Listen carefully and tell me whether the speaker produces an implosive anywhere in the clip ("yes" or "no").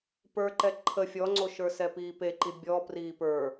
no